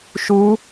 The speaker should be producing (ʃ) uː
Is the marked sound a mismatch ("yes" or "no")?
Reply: no